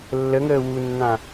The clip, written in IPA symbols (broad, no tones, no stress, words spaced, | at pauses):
lːəŋəː wunːã